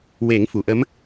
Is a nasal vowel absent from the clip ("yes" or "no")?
yes